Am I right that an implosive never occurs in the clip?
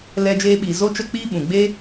no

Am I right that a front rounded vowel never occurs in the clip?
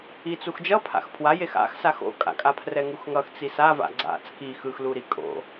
yes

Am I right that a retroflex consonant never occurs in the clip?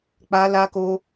yes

